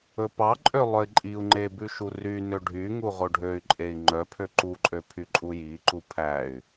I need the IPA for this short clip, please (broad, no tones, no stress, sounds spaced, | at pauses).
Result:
ɵ p ɑ ǃʼ ø lˠ œ i̯ ǃʼ i u̯ ŋ͡ǃ e b ʉ ʃ u r y n ø ɖʱ y ŋ u ʁ o ɖʱ ø y̯ ǃʼ e i̯ ŋ͡ǃ œ pʰ ø ǃ u ǃʼ ø pʰ y ǃʼ u j i ǃ u pʰ æ y̯